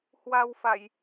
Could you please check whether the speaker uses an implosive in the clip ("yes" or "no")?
no